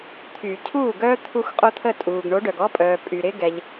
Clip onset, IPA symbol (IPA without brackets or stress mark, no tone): t̪ʰ